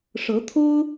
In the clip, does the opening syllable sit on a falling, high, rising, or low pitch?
rising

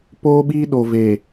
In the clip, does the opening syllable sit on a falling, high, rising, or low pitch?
high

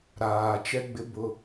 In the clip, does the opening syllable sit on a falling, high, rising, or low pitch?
low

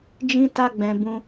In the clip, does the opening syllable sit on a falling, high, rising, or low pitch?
high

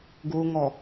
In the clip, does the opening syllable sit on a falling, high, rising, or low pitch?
low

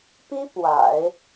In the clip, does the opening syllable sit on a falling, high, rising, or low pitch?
high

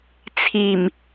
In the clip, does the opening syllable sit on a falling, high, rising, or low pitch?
low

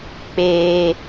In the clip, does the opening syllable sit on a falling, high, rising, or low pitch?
high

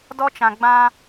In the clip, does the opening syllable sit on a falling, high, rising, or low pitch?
high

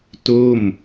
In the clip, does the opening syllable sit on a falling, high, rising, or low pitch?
falling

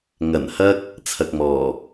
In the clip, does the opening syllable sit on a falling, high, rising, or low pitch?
low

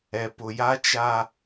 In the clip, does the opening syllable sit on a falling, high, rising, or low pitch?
low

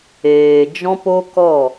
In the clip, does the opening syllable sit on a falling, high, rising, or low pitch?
low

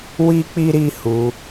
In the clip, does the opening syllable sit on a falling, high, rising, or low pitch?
high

